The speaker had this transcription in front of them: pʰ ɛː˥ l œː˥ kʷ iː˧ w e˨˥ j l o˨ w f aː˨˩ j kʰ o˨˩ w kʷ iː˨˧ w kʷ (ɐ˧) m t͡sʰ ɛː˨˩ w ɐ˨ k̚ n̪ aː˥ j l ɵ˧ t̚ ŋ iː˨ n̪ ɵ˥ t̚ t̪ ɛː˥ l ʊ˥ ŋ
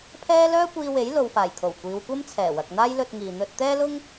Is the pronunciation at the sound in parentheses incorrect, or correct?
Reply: incorrect: ɐ˥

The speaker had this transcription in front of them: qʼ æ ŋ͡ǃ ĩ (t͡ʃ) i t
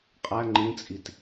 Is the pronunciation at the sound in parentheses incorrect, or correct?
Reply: incorrect: t͡sʼ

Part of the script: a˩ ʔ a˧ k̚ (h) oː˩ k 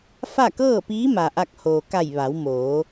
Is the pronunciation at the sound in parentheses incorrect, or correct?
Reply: correct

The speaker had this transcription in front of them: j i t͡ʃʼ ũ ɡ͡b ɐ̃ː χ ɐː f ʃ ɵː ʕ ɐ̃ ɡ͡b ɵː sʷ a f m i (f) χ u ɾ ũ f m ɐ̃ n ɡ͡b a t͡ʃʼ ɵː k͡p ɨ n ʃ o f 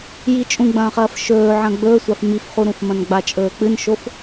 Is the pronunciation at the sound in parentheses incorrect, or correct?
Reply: correct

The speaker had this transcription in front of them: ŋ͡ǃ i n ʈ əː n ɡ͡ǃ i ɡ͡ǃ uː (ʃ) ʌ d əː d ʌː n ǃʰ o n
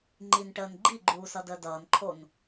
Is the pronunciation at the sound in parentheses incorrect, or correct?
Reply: incorrect: s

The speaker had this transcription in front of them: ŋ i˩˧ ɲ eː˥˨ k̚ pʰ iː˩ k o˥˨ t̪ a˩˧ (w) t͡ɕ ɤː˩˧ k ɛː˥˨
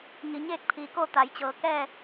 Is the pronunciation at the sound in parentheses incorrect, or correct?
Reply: incorrect: j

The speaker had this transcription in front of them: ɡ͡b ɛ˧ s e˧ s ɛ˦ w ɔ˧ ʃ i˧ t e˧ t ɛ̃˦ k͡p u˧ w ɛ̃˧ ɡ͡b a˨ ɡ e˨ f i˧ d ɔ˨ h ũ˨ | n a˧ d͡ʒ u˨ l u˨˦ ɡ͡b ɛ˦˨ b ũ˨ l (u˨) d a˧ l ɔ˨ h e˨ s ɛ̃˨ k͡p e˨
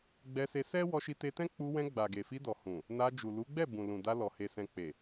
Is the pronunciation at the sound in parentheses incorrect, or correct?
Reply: incorrect: ũ˨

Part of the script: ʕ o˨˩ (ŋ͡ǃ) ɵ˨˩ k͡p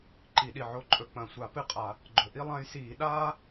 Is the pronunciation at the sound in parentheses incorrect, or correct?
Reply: incorrect: ǃʼ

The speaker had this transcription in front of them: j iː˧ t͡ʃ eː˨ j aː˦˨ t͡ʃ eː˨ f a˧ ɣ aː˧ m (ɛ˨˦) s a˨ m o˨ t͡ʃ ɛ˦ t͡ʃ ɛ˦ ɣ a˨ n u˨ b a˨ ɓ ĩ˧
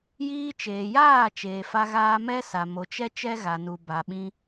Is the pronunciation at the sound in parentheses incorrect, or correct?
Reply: incorrect: ɛ˦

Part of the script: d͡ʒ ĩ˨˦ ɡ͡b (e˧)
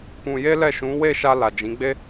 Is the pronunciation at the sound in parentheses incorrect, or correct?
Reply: incorrect: e˦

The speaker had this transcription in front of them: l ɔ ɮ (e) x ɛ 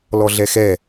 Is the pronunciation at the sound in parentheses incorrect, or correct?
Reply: incorrect: ɛ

